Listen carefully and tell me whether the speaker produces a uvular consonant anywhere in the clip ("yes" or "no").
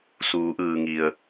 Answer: no